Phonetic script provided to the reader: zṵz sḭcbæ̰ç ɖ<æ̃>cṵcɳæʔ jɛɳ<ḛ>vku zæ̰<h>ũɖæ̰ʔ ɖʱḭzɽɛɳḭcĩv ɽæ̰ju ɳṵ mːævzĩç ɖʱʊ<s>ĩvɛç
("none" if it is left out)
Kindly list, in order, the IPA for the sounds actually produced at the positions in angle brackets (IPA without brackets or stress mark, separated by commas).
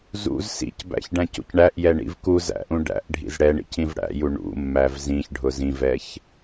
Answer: æ̃, ḭ, ʔ, z